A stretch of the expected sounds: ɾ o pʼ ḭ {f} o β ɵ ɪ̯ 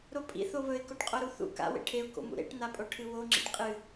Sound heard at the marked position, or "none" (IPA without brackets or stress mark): θ